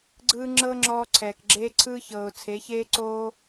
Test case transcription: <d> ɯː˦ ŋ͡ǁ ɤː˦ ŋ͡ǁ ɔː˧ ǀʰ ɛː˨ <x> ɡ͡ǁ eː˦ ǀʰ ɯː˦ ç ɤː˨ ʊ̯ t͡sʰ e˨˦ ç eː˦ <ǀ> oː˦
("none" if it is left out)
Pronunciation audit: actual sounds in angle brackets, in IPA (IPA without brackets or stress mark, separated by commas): ɡ͡ǀ, k, ǀ